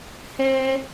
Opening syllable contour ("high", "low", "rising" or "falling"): high